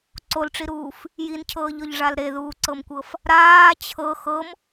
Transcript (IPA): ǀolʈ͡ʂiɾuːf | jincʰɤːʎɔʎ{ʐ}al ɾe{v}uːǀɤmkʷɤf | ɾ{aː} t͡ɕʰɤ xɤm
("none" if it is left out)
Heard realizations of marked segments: ʐ, ð, aː

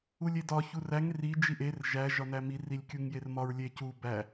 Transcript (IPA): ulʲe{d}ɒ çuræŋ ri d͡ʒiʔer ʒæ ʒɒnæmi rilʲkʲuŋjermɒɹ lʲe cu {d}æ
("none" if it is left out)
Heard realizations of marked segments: d, b

